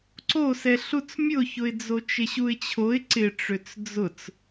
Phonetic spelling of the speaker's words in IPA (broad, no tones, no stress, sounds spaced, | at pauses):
ǀ o s ɛ ɬ u t͡s mʲ ʊ ç ʊ ɪ̯ d͡z o t͡ʃ ɪ ɕ u ɪ̯ t͡ɕʰ o ɪ̯ ǀ ɪ ʈ͡ʂ ø t͡s d͡z ʊ t͡s